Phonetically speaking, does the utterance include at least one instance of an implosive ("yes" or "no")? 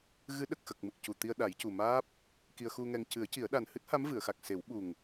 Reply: yes